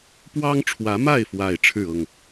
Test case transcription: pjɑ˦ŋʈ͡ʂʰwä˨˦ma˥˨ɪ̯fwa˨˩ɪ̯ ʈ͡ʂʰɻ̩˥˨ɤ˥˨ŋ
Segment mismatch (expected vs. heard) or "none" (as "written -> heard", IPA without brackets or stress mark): j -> w